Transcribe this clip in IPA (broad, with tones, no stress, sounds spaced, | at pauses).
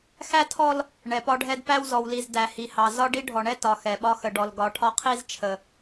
x æ˦ tʰ ɔ˦ l | ɳ ɛ˨ p ɒ˦ ɖʱ ɛ˦ d p æ˦ w z ɔ˨ w l i˨ z d æ˨ h i˨ h ɑ˨ z ɒ˦ ɖ i˦ ɖʱ ɔ˨ ɳ ɛ˦ t ɒ˨ x ɛ˨ ɓ ɒ˦ x ə˨ ɖ ɔ˨ l ɡ ɒ˨˦ ʈʰ ɒ˦ qʰ i˦ z t͡ʃʰ ə˦